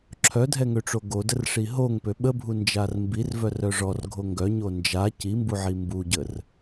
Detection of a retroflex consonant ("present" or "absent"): present